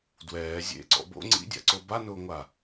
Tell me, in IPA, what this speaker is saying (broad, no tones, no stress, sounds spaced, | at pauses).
d w ɛː zʲ ḛ ǀ ɔ̰ b o̰ ŋ͡ǀ ḭ dʲ a̰ ǀ o b a n ʊː ŋʷ a